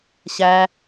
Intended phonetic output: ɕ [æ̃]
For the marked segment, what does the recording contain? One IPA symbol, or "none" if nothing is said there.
æ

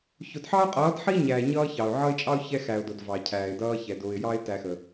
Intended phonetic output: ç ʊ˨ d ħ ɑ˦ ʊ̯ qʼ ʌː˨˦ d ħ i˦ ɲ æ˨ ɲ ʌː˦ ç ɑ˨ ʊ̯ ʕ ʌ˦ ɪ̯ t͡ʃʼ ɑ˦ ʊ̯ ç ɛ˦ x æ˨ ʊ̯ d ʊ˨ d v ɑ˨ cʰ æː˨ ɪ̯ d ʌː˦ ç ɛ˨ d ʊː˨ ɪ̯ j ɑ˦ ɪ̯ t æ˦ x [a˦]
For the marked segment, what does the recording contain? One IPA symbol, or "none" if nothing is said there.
ə˦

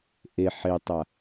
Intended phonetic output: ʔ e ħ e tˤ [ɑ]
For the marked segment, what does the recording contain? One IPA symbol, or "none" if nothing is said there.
a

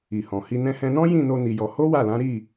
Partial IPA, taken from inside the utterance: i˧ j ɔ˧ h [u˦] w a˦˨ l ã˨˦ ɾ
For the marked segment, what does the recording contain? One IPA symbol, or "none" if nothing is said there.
o˦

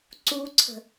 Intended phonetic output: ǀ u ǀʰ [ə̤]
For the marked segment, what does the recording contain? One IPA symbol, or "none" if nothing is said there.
ə̤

